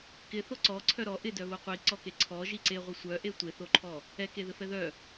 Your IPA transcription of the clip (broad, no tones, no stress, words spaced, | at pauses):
kɪθo ǀɔǀʰœ ɾɔ ʔɪdœβo qʷiǀɔke ǀʰɔʒi ǀeʁʷɘ sʷœʔe tʷeθoǃʰɔ | ɛkeðɘfɛ ðœ